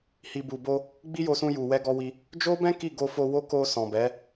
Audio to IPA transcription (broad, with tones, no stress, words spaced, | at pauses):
hi˨bu˨bo˧ | ɡ͡bi˦jo˧sũ˧ju˨ wɛ˧ɡɔ˧wi˧ | d͡ʒo˦bɛ̃˦ ki˦˨ɡo˧fo˧wo˦ ko˧ sɔ̃˨bɛ˨˦